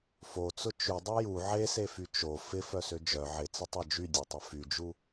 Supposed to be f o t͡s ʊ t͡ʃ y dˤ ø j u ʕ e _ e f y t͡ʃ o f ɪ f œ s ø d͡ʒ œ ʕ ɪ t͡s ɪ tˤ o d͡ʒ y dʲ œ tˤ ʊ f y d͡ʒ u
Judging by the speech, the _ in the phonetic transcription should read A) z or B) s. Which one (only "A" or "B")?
B